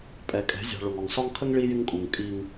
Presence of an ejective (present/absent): present